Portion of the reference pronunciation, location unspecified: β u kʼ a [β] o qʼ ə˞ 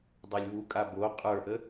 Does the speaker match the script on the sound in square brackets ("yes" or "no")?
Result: no